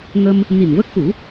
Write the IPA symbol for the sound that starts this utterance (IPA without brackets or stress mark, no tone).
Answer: ŋ